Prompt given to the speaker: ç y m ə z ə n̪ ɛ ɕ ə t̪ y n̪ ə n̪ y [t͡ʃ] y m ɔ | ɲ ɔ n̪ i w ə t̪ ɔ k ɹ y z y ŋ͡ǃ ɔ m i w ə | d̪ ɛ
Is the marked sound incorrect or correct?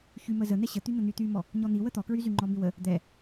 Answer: incorrect: t̪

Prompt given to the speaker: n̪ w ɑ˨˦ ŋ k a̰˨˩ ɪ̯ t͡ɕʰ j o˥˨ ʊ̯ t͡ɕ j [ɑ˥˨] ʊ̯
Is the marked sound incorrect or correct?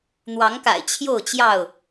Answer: correct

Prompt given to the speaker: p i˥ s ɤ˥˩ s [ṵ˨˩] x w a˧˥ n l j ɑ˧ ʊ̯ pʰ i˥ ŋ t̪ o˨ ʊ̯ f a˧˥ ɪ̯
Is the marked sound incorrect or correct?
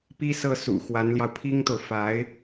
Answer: correct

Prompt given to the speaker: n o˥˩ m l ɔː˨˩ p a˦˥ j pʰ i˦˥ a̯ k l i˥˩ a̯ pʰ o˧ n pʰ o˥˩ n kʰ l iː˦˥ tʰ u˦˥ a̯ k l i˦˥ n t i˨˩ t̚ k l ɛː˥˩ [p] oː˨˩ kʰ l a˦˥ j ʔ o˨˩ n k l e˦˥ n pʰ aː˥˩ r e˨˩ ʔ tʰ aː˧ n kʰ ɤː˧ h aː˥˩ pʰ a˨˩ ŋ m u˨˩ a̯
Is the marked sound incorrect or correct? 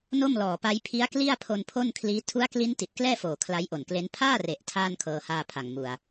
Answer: incorrect: f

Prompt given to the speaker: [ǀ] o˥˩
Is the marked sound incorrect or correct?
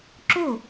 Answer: incorrect: ǁ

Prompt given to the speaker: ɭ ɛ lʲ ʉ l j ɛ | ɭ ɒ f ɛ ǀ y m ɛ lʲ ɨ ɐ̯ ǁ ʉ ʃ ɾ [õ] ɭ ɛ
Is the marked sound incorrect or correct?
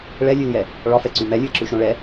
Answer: correct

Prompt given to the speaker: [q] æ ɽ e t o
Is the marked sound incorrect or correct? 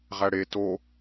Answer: incorrect: ʁ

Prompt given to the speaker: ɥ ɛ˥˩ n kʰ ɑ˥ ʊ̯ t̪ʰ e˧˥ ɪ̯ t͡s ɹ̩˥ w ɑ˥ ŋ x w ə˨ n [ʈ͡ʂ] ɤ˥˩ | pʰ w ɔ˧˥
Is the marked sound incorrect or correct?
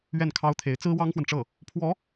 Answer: correct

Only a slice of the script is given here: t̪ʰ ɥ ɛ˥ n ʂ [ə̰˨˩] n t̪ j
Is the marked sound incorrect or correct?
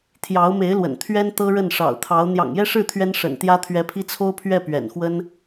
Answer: correct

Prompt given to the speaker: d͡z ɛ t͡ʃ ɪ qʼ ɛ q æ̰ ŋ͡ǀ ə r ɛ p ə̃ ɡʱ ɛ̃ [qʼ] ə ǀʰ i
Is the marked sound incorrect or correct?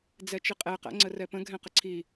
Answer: incorrect: q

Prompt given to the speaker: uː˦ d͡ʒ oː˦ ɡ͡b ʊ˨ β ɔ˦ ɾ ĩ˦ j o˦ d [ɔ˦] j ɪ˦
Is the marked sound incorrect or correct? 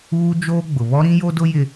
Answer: incorrect: ʊ˦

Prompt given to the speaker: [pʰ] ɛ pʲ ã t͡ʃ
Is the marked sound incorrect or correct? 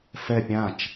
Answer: incorrect: f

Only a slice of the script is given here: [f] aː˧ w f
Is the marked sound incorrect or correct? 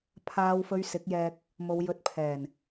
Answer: incorrect: pʰ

